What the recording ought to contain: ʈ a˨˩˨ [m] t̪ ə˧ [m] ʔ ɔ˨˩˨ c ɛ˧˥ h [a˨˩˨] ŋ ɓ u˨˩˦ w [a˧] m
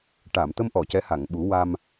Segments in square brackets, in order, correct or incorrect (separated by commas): correct, correct, correct, correct